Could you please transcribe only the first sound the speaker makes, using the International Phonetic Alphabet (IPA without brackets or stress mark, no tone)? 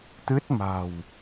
t̪